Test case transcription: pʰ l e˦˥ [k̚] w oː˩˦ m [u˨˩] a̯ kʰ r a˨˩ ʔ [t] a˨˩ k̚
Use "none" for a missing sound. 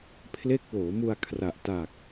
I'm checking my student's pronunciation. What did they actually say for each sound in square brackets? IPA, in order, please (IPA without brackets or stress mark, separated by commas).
k̚, u˧, t